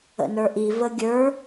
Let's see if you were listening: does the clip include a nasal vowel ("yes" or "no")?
no